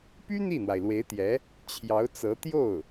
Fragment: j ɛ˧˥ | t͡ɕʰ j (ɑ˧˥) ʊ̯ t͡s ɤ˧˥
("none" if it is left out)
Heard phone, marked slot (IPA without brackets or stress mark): ɑ˧˥